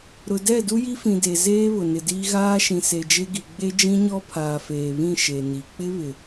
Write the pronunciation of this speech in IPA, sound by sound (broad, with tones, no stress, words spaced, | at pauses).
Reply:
ɾʊ˨dɛ˦˨ du˦ji˦fĩ˨ de˨zeː˦ βʊ˨nɪ˨diː˦ ɣaː˦ʃĩ˨ se˨d͡ʒe˦ɡi˨ ɡ͡be˦d͡ʒĩ˦ɲɔ˦ pʰaː˨feː˨βĩ˦˨ ʃe˨ni˨ k͡pɪ˦βɪ˨